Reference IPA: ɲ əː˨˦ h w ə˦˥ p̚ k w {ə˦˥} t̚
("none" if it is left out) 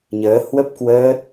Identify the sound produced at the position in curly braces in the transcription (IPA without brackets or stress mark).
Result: əː˦˥